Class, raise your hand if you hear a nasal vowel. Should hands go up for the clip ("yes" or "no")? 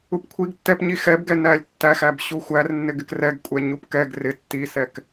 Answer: no